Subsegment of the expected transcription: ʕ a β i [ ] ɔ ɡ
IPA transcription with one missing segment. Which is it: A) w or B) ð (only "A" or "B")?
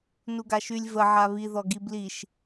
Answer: B